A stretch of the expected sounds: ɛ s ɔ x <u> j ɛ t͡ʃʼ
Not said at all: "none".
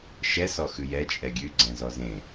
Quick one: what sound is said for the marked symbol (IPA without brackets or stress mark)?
ʉ